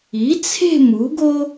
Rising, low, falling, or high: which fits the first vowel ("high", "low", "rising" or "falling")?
rising